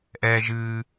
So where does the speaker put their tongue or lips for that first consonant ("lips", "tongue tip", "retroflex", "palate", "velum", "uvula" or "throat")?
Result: throat